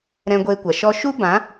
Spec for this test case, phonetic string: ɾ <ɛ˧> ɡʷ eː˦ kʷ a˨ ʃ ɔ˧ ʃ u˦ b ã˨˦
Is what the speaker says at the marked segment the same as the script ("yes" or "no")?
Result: no